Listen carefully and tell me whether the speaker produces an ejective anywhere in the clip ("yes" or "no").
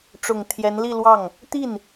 no